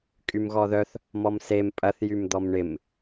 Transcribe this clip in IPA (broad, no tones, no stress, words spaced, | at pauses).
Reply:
kʼymɣɔðœθ | mɔmsem pʼɐθ jymd̪ɔmɳɪm